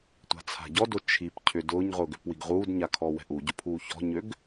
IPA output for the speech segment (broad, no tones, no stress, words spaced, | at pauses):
tʷa̤t͡sʰa̤ɟɔdo t͡ʃʰipcʰʏ dʊːɲʁʊːɡ ʏpwiɡ ʁuːdɲa kʰɔwɛ̤ʔuɟʊ pʰuːçɔ̤ɲøɡ